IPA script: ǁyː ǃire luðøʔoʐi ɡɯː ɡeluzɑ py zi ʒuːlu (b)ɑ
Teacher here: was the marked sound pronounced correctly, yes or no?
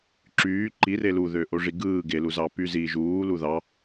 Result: no